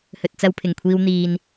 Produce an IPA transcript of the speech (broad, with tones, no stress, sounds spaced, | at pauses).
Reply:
h ɵ˨ t̚ t͡s ɐ˧ w pʰ ɪ˨˩ ŋ kʷʰ iː˧ w n̪ iː˨ n